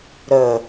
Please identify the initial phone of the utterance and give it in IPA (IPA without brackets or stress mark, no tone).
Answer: ɾ